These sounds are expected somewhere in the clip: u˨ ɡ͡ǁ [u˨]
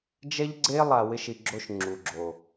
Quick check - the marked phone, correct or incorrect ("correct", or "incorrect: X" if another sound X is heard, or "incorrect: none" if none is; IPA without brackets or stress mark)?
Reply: incorrect: o˨